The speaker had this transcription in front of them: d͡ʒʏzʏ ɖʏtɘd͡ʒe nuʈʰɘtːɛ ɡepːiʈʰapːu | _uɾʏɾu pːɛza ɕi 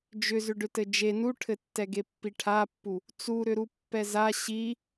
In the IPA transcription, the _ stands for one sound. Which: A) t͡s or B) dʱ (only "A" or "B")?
A